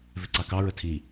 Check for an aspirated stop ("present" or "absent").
present